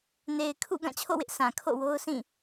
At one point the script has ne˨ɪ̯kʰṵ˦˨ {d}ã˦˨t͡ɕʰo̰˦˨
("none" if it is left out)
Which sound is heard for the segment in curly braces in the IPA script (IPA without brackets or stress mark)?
ɡ